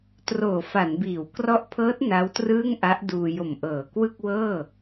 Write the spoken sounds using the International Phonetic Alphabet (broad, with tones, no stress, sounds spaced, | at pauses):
t r oː˨˩ f a˩˦ n b iː˩˦ w k r ɔ˦˥ ʔ pʰ ɤː˦˥ t̚ n a˦˥ w t r ɯː˥˩ ŋ ʔ a˦˥ ʔ d uː˧ j o˨˩ m ʔ ɤː˩˦ k w ɯ˥˩ k̚ w ɤː˥˩